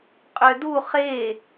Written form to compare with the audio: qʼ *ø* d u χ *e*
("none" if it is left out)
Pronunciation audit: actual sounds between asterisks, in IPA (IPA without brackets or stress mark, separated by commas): ø, e